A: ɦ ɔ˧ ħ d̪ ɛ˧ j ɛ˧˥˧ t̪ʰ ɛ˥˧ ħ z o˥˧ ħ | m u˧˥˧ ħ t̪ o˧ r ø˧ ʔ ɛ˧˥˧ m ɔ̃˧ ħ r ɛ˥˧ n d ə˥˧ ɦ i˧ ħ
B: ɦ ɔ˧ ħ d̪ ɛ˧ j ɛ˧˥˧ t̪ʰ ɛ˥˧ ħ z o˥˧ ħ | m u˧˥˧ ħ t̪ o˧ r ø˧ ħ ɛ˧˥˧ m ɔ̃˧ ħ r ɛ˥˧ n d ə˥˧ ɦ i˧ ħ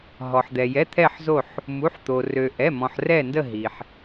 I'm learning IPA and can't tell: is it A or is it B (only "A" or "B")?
A